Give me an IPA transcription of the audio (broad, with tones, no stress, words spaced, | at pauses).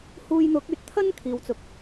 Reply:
huː˧jn̪ʊ˨˥k̚ yː˨t̚t̪ʰɐ˥nkʰiː˨wt͡sʊ˨k̚